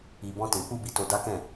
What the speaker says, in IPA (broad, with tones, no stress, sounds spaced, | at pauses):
i˨ b ɔ̃˧ t ĩ˨ k͡p u˧ b i˨ t o˧ d a˦ k ɛ̃˦˨